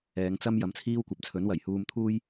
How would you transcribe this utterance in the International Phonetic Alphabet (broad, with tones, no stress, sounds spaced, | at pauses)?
ɛː˨˧ ŋ t͡s ɐ˥ m j ɐ˨˥ m t͡sʰ iː˥ w kʷ ɐ˨˥ p̚ t͡sʰ ɵ˨˥ n w ɐ˨˩ j h uː˧ m t̪ʰ uː˥ j